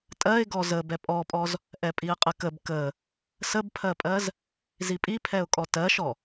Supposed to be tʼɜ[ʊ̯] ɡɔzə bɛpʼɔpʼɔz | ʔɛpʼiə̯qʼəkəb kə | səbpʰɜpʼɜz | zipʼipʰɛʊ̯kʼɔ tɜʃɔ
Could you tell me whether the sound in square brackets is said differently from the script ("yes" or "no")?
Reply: yes